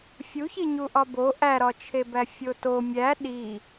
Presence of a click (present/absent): absent